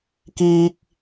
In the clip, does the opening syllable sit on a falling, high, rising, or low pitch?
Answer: high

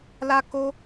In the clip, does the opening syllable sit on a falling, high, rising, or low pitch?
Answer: high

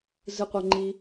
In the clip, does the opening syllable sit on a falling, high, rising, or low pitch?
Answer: high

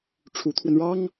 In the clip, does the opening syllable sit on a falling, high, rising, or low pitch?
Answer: rising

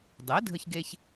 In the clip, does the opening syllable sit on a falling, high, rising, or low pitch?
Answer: rising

